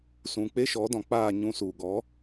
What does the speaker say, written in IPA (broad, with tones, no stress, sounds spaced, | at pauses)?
s ũ˨ k͡p e˦ ʃ ɔ˨˦ d ɔ̃˨ k͡p aː˦˨ ɲ ũ˧ s u˨ ɡ ɔ˨˦